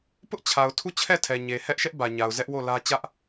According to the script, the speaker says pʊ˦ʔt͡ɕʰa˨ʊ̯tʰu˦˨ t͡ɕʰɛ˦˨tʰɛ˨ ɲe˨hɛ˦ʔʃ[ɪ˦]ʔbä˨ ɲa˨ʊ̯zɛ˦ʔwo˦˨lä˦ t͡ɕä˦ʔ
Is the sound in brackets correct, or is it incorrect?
incorrect